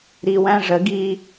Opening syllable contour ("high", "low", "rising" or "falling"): low